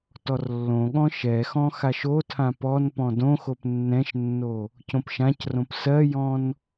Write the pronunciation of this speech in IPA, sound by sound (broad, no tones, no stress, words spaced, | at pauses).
tɔrlːõɠɔ̃ ʃɛxɔ̃ xaʃotʰã pɔn pɔ̃dõxop nːɛ̃ʃnːo | cõpʃãcrõp sɜjɔ̃n